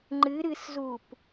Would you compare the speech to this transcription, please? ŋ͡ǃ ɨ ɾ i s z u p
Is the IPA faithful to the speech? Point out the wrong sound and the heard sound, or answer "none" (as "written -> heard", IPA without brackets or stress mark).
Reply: i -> ɨ